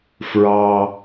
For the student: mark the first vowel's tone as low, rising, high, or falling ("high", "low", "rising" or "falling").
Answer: low